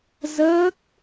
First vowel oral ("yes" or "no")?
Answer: yes